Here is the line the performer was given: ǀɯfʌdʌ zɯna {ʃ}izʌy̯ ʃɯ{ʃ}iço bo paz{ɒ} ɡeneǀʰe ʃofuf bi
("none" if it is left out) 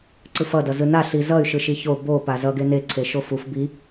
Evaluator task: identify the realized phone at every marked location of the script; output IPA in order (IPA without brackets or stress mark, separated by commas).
ɬ, ʃ, ʌ